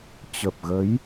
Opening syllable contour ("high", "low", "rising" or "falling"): low